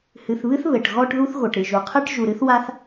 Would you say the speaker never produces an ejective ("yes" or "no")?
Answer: yes